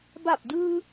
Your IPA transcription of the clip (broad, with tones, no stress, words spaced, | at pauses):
ba˧˩p̚dɯː˧